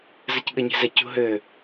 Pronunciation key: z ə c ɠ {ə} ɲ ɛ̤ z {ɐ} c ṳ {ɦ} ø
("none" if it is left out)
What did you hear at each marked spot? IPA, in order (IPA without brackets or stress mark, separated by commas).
ə, ɐ, ɦ